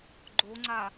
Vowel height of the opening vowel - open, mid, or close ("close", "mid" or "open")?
mid